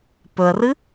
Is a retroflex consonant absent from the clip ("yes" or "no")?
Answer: yes